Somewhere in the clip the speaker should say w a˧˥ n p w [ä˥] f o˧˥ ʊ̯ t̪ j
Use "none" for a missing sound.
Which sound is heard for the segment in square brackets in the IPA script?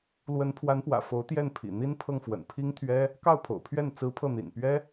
ä̰˨˩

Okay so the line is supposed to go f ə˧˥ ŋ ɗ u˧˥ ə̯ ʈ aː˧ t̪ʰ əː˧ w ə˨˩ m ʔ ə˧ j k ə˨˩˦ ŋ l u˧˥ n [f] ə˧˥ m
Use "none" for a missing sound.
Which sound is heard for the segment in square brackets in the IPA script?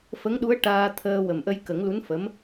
f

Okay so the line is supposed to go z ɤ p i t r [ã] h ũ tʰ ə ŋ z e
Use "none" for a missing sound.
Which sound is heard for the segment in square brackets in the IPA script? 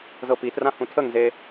ã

